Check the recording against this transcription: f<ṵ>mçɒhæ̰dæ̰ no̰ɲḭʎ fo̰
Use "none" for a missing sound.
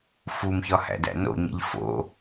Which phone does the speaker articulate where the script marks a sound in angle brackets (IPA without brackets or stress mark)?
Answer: u